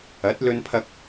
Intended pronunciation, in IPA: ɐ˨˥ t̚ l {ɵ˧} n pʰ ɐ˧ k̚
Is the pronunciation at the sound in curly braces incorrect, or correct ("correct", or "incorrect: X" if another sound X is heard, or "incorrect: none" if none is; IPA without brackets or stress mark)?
correct